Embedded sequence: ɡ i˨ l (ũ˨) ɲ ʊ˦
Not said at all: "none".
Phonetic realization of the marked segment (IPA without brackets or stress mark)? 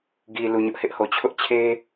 u˨